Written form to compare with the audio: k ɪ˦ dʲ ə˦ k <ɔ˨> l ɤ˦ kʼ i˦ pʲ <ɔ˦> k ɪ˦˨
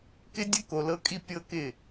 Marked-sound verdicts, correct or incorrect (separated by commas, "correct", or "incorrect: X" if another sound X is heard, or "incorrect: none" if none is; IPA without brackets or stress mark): incorrect: o˨, incorrect: ɤ˦